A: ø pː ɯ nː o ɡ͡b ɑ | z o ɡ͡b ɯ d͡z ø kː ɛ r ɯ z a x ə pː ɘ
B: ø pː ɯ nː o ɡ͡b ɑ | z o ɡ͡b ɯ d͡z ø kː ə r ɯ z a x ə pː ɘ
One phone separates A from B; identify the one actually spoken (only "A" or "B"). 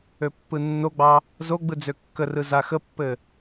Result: B